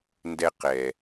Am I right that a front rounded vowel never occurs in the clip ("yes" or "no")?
yes